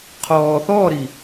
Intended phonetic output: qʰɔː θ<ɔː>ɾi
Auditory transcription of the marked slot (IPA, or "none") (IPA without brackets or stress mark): ɔː